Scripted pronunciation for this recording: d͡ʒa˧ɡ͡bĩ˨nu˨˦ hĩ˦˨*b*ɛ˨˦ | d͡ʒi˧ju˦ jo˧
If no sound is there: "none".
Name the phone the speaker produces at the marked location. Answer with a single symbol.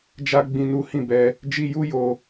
b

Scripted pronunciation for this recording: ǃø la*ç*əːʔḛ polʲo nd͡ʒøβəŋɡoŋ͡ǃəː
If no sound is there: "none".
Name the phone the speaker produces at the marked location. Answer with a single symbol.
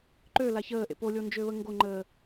ç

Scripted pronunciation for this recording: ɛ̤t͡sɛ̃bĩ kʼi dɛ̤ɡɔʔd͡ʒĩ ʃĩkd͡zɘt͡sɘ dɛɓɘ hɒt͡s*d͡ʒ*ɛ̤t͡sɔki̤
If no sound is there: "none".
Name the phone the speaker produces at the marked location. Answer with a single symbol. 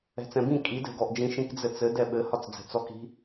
d͡z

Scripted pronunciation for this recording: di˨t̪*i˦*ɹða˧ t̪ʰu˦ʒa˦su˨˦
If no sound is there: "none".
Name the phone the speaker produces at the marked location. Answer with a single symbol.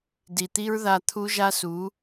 i˦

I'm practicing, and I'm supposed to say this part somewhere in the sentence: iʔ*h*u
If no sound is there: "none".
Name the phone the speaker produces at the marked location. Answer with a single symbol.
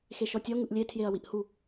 h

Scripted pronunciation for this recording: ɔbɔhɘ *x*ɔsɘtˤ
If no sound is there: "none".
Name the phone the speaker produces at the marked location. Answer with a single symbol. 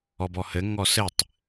ŋ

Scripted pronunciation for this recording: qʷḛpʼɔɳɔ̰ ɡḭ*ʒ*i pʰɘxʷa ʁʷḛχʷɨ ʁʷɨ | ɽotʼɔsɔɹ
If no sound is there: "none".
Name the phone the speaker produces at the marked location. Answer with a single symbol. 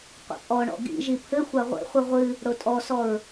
ʒ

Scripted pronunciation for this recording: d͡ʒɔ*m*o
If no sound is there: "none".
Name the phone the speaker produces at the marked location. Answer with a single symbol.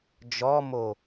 m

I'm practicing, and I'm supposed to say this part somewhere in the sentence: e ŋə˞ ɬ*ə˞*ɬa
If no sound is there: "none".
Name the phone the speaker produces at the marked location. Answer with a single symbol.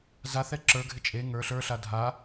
ə˞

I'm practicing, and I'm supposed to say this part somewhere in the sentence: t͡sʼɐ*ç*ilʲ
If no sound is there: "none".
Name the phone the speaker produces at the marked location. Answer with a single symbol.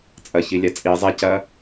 ç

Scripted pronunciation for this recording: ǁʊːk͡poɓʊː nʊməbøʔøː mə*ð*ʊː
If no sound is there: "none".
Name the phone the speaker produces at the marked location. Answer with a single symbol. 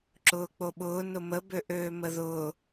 ð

